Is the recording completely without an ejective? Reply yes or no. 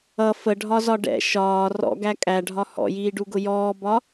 no